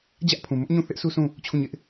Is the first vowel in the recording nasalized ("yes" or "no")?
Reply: no